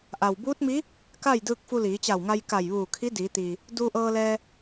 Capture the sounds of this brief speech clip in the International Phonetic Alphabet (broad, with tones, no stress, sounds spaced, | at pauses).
ʔ a˩ w b uː˧˥ t̚ m i˧˥ | k a˥˨ j d ɯː˧ k̚ f u˧ l iː˩˧ t͡ɕ a˧˩ w ŋ a˧ j k a˧˩ j ʋ uː˧˩ kʰ i˧˥ d iː˩˧ t̪ iː˩ | d uː˧ ʔ ɤː˧ l ɛː˧